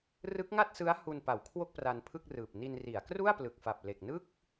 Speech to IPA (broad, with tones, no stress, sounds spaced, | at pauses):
r ɯ˦˥ k̚ ŋ a˥˩ t̚ s ɯ˦˥ a̯ h u˧ n p a˩˦ w kʰ w o˥˩ k̚ p r a˧ n pʰ ɯ˥˩ k̚ r ɯː˨˩ p̚ n i˧ n r i˩˦ a̯ k r u˥˩ a̯ p l ɯ˨˩ k̚ f a˨˩ p̚ l e˨˩ k̚ n ɯ˥˩ k̚